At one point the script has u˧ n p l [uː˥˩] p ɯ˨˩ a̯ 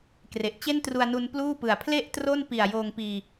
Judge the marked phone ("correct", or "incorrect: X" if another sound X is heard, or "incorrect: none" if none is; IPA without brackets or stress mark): correct